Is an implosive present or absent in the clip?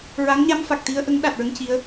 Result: present